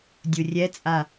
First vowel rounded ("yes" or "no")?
yes